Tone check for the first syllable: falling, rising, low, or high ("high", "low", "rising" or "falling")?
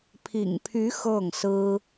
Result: low